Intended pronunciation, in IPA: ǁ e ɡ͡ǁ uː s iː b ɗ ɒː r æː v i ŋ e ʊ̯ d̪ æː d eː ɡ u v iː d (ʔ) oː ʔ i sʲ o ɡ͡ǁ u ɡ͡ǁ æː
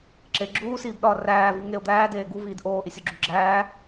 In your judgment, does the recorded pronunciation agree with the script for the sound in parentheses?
yes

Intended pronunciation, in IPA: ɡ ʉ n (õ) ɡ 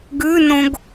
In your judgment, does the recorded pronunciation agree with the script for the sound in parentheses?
yes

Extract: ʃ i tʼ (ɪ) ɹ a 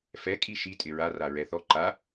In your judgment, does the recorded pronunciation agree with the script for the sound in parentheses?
yes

